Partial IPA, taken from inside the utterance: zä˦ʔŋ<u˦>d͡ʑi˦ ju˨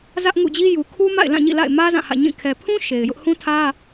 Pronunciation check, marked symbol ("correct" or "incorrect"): incorrect